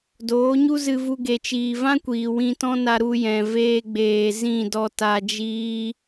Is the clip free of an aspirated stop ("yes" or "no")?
yes